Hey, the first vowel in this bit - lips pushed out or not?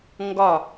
yes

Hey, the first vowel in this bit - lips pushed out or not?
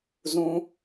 yes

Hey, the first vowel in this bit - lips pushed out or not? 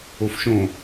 yes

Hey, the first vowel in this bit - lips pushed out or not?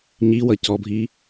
no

